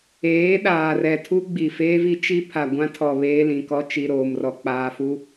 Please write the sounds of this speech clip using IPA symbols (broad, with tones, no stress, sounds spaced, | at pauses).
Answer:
eː˨˦ ɗ aː˨ r ɛ˨ tʰ u˦ ɡ͡b i˨ f eː˦ v i˦ t͡ʃ i˦ pʰ a˨ ɡʷ ã˦ tʰ ɔ˨ β eː˦ l ĩ˨ k ɔ˦ t͡ʃ i˨ ɾ oː˨ m r ɔ˨ k͡p aː˨ f u˦